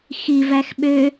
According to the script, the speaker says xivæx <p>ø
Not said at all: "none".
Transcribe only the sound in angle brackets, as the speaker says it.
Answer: ɓ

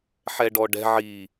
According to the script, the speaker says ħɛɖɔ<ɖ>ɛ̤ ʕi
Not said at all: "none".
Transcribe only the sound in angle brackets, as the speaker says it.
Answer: ɖ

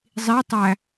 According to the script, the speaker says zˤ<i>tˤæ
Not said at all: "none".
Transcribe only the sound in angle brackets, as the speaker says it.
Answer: i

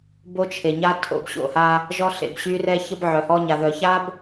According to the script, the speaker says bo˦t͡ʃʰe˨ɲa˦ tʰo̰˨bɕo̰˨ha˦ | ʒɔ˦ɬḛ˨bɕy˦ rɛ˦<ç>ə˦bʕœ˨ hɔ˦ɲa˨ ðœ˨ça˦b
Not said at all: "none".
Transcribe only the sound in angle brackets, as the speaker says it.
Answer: ç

